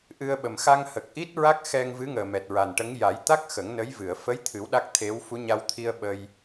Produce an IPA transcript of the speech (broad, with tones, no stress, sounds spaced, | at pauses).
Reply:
ʔ ɨ˧ ə̯ ɓ ə˨˩ m x a˧ ŋ h ə˨˩ k̚ ʔ i˦˥ t̚ ɹ a˦˥ k̚ x ɛ˧ ŋ v ɨ˧˥ ŋ əː˨˩ m ɛ˨˩ t̚ ɹ a˨˩ n ʈ ə˧˥ ŋ j a˨˩˦ j t̪ a˦˥ k̚ x ə˨˩˦ ŋ n ə˧˥ j v ɨ˨˩˨ ə̯ f ə˧˥ j t̪ʰ ɨ˨˩˦ w ɗ a˦˥ k̚ t̪ʰ e˧˥ w f u˧˥ ɲ a˧ w t̪ʰ i˧ ə̯ ɓ ə˧ j